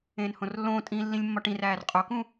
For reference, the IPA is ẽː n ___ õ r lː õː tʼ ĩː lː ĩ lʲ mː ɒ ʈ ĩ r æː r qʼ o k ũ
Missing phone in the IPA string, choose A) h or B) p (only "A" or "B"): A